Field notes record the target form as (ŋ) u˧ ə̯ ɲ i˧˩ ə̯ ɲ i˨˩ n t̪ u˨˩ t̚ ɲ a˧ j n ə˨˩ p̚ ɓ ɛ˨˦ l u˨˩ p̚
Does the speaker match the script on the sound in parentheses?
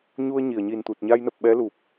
no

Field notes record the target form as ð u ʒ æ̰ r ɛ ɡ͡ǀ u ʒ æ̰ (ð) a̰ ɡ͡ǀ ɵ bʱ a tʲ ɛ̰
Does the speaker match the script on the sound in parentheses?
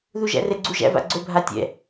no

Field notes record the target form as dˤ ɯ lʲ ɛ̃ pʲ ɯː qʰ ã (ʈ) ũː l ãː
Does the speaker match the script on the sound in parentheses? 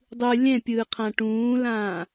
yes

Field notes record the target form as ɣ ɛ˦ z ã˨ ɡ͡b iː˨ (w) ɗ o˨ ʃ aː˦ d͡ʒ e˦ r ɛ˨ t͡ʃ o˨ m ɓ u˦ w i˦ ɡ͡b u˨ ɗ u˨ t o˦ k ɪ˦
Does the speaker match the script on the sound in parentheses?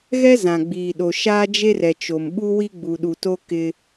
no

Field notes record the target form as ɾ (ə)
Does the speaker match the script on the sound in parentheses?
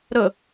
yes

